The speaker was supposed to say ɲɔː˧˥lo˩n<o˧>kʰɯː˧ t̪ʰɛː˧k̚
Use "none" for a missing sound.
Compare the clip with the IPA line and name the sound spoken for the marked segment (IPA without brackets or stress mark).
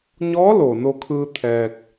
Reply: o˧